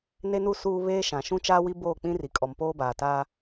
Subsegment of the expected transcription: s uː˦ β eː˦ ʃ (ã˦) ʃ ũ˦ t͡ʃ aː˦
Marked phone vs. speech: incorrect: ã˨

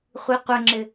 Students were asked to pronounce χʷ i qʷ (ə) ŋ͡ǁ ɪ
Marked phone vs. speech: correct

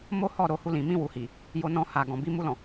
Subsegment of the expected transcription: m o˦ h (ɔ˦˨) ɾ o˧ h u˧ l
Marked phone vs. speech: correct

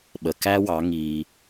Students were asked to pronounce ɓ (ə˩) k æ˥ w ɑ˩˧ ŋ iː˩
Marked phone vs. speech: correct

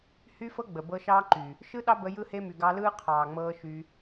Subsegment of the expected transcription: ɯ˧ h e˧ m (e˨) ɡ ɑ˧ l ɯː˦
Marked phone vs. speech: incorrect: y˨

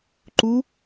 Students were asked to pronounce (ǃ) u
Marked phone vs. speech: correct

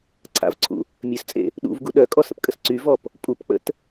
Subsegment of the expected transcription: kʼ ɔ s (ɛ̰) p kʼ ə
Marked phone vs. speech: incorrect: ə̰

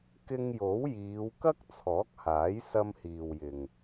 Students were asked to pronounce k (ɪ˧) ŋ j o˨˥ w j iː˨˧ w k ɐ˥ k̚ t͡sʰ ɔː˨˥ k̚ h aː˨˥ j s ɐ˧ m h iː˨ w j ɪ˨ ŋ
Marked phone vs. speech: correct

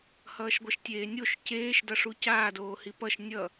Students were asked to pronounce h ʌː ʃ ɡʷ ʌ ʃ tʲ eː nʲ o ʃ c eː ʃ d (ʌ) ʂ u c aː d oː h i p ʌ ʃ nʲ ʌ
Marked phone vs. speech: correct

